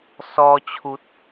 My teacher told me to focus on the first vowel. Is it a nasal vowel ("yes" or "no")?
no